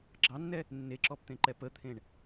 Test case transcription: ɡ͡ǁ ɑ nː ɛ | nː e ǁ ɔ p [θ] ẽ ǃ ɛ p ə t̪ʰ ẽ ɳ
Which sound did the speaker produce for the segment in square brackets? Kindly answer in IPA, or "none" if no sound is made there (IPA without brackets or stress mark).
t̪